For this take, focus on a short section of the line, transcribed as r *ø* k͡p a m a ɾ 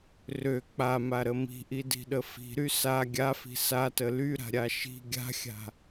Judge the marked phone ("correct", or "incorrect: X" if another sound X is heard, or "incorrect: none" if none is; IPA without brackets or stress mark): correct